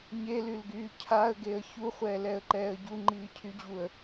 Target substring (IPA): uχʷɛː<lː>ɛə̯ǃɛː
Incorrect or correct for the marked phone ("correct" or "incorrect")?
incorrect